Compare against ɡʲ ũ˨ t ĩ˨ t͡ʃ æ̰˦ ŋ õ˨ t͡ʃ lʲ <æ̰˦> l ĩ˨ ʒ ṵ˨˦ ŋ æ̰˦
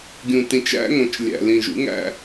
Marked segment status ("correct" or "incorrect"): incorrect